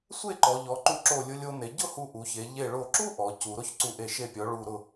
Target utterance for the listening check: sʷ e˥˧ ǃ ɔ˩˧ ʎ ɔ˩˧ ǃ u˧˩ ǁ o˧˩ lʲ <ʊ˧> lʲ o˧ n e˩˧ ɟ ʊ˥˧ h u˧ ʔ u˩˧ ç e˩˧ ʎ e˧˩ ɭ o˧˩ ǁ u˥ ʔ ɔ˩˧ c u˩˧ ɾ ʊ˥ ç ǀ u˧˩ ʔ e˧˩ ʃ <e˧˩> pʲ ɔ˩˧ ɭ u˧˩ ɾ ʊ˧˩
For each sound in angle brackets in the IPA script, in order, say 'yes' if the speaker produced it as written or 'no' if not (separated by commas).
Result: yes, yes